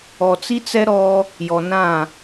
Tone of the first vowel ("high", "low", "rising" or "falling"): low